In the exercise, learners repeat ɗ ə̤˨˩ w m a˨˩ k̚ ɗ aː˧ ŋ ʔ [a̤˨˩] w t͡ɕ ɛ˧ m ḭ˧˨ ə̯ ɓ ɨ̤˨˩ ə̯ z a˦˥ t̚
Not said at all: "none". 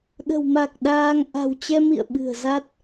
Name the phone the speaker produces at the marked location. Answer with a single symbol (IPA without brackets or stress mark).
a̤˨˩